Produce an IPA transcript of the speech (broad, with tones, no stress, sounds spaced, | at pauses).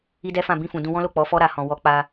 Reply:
i˦ d ɛ˦ f ã˦˨ b ĩ˧ f ũ˨ d ũ˧ w ɔ̃˦ l o˦˨ k͡p ɔ˨˦ f ɔ˦ ɾ a˧ h ɔ̃˨ w ɔ˨˦ k͡p a˧